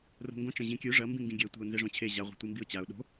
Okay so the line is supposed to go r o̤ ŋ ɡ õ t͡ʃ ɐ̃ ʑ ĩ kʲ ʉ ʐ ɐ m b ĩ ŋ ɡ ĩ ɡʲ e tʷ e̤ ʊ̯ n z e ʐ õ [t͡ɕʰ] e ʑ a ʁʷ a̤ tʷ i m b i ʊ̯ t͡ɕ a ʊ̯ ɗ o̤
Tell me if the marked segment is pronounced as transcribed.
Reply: yes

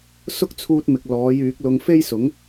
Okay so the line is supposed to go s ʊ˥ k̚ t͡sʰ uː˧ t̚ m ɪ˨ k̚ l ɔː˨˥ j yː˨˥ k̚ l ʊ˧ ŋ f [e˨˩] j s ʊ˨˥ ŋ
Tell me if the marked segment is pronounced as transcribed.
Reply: no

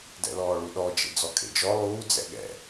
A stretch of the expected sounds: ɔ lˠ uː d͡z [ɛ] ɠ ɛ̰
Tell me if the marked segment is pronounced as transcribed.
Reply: no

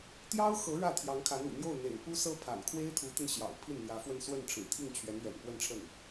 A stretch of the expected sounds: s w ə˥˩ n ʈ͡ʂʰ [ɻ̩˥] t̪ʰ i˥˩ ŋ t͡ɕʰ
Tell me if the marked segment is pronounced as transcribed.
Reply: no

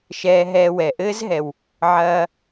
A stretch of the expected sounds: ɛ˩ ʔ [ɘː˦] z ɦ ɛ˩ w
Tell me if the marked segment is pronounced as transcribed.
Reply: yes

